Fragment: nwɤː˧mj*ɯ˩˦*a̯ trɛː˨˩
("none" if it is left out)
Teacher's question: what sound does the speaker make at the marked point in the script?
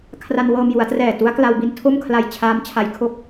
u˩˦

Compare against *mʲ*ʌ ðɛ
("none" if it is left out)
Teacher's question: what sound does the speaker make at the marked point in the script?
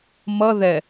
m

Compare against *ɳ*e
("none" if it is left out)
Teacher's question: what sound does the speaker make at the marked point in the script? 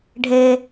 ɖʱ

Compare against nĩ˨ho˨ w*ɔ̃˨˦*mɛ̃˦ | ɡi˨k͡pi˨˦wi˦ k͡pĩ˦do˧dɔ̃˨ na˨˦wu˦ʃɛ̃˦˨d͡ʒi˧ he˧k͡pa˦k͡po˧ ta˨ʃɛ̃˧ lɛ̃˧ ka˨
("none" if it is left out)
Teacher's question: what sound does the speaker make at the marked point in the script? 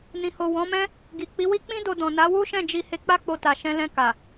ɔ̃˨˦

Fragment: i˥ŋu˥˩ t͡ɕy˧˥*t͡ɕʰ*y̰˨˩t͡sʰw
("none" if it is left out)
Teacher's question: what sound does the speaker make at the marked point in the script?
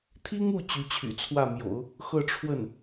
t͡ɕʰ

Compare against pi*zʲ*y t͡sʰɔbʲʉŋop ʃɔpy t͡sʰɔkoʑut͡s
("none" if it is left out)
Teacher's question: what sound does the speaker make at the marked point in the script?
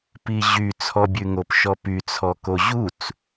ʑ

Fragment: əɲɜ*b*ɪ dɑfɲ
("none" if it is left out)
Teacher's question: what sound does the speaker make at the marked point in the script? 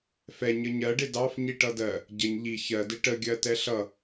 ɖ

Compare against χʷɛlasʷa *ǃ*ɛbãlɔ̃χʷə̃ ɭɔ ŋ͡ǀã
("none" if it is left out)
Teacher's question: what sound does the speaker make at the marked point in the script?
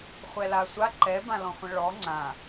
ǃ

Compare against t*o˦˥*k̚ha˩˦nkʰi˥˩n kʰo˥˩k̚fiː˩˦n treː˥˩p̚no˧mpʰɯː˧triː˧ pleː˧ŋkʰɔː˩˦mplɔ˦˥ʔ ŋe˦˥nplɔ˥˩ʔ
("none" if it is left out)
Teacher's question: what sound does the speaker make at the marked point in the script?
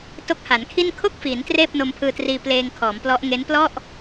o˦˥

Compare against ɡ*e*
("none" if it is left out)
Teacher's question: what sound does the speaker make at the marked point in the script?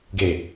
e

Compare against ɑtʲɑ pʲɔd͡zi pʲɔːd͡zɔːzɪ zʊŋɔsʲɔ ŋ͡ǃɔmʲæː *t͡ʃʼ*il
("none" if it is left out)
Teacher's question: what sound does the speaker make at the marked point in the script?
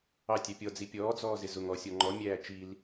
t͡ʃ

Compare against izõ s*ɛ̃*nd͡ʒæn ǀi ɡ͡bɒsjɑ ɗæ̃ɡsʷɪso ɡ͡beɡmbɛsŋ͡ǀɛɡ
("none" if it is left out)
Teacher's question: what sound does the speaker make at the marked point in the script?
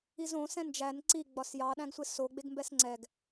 ɛ̃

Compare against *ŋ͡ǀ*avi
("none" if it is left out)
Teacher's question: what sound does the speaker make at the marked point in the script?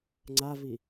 ŋ͡ǀ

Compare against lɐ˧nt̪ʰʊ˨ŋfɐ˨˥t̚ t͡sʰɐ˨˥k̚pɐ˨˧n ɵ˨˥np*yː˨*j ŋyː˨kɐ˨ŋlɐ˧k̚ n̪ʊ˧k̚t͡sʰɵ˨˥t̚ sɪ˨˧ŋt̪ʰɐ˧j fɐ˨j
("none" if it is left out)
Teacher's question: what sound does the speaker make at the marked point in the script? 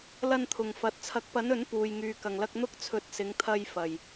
uː˨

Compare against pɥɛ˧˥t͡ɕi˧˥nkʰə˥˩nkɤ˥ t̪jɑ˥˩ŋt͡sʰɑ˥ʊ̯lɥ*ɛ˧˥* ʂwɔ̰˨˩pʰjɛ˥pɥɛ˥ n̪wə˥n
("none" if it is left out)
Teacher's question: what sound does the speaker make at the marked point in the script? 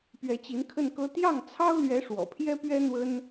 ɛ˧˥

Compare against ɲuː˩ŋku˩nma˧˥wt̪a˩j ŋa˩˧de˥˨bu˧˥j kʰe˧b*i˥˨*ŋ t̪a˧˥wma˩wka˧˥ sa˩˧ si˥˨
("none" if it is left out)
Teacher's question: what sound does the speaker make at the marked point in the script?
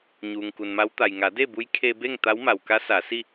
e˥˨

